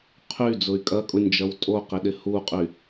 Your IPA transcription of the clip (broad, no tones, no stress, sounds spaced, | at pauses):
qʰ y d͡z ʊ y̯ kʼ ɐ kʼ ʊ nʲ d͡ʒ ɐ w tʼ o q ɪ ɗ ɪ h u qʼ y